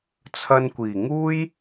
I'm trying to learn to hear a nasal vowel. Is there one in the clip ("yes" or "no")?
no